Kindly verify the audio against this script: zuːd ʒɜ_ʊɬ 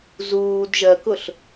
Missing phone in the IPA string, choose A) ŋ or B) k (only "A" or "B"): B